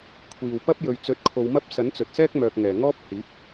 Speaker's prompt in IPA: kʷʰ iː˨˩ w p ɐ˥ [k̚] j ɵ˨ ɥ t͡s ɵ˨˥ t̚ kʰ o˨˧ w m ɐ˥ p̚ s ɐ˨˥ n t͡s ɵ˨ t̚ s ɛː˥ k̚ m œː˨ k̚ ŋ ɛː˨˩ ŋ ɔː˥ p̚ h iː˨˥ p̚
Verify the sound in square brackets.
incorrect: p̚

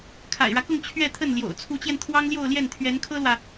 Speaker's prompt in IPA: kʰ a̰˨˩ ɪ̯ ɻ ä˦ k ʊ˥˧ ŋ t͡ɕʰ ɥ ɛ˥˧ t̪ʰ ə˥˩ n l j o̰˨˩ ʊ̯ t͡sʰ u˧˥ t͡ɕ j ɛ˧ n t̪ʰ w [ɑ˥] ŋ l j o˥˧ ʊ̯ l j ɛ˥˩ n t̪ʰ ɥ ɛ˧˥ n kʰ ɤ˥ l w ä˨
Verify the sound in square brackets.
correct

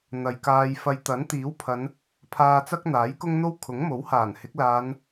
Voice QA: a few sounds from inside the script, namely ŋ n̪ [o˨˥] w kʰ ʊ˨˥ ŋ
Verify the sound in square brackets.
incorrect: o˥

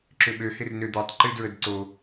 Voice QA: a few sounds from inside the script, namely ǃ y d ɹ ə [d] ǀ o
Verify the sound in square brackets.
correct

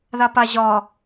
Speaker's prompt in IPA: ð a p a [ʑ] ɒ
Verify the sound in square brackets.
correct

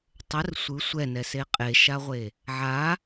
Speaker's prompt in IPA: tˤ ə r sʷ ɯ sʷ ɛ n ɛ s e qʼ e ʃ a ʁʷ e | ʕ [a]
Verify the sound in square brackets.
correct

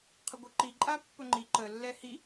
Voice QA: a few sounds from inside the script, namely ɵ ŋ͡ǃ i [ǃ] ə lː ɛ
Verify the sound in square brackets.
correct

